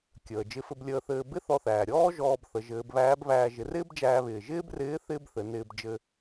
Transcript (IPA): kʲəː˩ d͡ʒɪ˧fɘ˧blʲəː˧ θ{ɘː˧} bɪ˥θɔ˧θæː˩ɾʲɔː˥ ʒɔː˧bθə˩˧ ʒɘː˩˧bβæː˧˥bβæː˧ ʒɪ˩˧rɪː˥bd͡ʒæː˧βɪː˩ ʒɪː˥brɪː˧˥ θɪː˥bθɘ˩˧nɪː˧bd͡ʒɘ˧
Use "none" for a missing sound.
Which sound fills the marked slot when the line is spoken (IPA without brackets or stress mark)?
ɘː˧